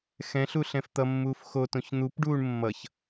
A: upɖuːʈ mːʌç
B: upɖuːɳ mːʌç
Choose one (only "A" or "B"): B